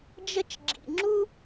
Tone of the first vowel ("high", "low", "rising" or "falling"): high